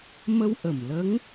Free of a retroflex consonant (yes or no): yes